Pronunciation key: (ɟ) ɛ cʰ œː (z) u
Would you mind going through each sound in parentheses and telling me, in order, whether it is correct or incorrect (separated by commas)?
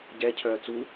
correct, incorrect